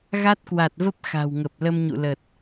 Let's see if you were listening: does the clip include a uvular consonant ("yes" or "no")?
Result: no